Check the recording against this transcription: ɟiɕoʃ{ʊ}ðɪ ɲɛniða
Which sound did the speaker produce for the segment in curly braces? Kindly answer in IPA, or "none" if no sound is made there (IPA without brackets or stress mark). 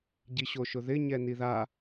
ʊ